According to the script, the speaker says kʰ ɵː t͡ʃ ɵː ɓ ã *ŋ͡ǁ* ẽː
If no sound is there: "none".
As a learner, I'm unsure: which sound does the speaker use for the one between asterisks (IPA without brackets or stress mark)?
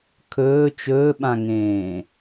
ŋ